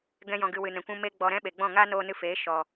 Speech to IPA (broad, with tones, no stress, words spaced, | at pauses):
ɡɛ̃˦jɔ̃˧ɡɨ˧ wɨ˨nɛ̃˨kʷũ˧ me˦ɡ͡bɔ˧ɾɛ̃˦ ɓe˨ɡ͡bɔ̃˦˨ ŋa˦ noː˦ nɨ˧feː˨˦ ʃɔ˨